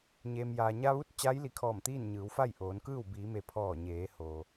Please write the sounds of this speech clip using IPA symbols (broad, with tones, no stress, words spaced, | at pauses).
ɲeː˩mjaː˩ɲa˧ʋu˧˥t̚ t͡ɕaː˧˥jli˩˧kʰɔː˧˩mt̪iː˥˨n ɲɯː˩˧wfa˥˨jʔoː˩˧nkɯː˥˨w biː˩˧me˩ pʰɔː˧˩ ɲeː˩˧ hoː˩